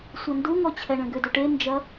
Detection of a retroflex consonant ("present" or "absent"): present